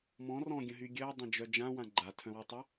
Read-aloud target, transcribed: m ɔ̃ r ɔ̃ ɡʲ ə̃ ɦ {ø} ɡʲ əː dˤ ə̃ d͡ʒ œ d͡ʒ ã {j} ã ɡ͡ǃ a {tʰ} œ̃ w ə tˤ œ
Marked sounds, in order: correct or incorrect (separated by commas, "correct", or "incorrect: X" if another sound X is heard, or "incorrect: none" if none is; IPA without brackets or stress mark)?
incorrect: y, incorrect: w, correct